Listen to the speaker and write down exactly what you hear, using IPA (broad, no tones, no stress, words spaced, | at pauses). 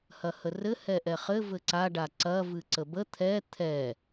hɐhərɘ hɛʔɛχɘ vɘǀa ɖaǀɐ vɨǀəbə t̪ʰɛ t̪ʰɛ